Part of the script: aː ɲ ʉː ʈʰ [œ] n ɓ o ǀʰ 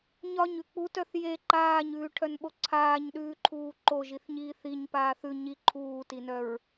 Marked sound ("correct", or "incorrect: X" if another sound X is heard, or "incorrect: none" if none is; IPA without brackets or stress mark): correct